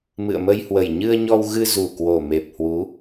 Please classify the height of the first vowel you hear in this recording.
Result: high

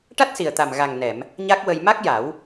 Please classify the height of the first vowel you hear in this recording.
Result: low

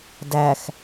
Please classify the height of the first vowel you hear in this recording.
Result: low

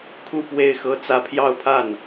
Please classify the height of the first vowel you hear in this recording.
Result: high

